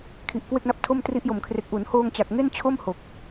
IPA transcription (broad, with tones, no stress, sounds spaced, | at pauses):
kʰ i˨˩ ʔ k w e˥˩ k̚ n a˦˥ p̚ tʰ o˥˩ m t r i˦˥ ʔ j o˨˩ m kʰ r e˨˩ k̚ ʔ uː˩˦ n h oː˧ ŋ t͡ɕ a˨˩ k̚ ŋ e˥˩ n t͡ɕʰ o˥˩ m h o˨˩ k̚